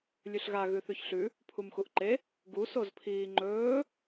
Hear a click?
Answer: yes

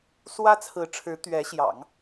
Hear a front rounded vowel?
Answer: no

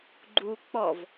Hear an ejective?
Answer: no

